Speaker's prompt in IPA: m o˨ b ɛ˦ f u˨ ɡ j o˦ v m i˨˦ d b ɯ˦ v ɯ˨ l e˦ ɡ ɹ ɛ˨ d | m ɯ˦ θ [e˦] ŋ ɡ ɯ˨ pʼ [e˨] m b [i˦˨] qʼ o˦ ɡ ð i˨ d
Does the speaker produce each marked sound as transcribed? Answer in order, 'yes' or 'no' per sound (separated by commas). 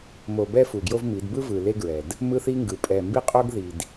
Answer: no, no, no